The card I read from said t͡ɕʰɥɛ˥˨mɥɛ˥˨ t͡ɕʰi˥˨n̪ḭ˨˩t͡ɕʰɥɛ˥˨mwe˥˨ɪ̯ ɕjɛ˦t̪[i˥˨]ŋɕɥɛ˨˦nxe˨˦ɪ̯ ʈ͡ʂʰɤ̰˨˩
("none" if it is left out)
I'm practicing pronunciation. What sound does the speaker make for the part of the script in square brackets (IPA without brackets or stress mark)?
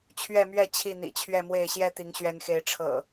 i˨˦